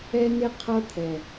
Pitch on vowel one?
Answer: high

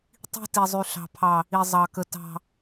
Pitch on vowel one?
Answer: high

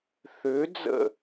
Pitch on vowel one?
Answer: rising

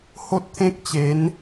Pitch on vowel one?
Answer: high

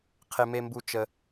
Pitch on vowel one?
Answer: low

